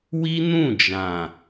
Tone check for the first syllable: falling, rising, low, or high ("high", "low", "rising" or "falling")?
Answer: high